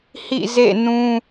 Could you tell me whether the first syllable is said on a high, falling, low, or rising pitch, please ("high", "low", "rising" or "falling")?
falling